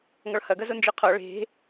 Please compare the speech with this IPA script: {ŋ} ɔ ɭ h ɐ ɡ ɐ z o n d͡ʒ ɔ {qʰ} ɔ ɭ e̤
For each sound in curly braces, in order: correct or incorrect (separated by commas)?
correct, correct